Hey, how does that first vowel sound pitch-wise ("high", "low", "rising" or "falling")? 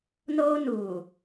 high